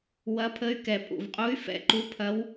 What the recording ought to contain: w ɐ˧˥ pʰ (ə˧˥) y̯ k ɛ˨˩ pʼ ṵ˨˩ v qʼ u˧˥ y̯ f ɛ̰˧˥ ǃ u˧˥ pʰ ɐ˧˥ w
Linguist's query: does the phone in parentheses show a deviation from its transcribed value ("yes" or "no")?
no